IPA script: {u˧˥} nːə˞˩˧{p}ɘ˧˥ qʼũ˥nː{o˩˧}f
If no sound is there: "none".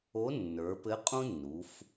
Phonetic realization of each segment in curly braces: o˧˥, p, u˩˧

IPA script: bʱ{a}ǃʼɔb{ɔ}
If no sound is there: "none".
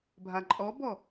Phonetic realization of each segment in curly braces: a, ɔ

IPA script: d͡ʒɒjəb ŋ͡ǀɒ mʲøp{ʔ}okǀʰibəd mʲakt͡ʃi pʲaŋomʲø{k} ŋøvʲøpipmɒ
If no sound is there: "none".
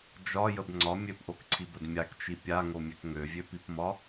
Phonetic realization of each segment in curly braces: ʔ, k

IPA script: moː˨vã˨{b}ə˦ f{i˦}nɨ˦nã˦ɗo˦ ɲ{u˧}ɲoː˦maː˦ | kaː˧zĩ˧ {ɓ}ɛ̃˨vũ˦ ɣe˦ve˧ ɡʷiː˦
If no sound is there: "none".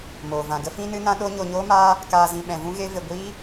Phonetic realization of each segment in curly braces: ɡ, ĩ˦, o˧, ɓ

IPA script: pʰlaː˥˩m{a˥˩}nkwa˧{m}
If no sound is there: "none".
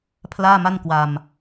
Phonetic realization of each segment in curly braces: a˥˩, m

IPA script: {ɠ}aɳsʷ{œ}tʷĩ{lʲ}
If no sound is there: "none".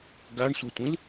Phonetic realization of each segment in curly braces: ɡ, œ, l

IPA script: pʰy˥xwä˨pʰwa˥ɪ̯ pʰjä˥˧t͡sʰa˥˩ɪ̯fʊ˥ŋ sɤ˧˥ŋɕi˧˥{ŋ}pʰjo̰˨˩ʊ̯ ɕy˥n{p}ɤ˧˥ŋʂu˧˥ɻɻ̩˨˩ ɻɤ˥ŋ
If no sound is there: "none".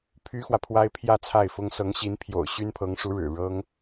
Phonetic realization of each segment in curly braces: n, pʰ

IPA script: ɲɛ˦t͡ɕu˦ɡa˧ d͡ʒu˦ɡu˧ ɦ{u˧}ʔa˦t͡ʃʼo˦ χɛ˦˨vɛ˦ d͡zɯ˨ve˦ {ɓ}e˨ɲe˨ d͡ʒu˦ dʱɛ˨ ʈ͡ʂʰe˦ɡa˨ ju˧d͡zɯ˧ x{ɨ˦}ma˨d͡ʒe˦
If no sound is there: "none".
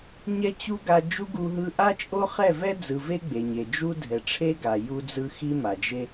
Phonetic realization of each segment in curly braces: ɯ˧, ɡ͡b, i˦

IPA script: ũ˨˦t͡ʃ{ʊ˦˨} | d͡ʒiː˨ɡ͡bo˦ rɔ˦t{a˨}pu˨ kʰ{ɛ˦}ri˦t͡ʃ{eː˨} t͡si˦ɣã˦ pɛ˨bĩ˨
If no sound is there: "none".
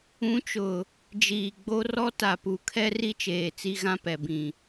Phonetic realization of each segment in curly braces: ʊ˨, a˨, ɛ˦, eː˨

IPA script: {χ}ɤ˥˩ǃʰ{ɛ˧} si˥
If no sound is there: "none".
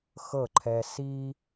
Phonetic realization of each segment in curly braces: x, ɛ˧

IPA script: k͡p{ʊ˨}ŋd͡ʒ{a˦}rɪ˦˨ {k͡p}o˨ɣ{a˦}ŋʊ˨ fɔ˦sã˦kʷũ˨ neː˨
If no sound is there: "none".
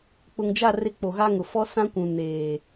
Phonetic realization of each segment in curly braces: ʊ˨, a˦˨, k͡p, a˦

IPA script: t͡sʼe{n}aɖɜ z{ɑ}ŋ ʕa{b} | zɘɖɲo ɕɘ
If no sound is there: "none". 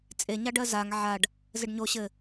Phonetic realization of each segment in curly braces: ɲ, a, ɖ

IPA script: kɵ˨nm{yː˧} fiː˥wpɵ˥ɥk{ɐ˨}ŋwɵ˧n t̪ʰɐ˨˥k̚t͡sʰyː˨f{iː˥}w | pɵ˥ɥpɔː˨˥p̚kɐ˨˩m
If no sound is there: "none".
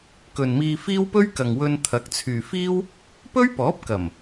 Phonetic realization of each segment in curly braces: iː˧, ɐ˨, iː˥

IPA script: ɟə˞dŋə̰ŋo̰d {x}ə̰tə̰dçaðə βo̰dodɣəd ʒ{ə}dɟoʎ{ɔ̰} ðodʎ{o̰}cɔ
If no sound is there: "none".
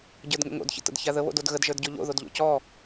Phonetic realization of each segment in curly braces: ç, ə˞, o̰, o̰

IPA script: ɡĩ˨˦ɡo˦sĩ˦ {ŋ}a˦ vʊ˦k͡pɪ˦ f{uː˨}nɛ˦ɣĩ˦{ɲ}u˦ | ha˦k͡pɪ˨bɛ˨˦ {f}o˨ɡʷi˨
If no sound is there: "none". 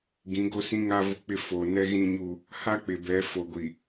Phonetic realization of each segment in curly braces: ŋ, oː˨, ɲ, f

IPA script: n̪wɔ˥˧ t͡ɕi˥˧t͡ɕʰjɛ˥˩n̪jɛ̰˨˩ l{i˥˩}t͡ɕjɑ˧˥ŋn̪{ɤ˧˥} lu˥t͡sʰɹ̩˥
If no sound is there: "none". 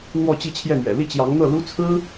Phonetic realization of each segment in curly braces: i˥˩, ɤ˥˩

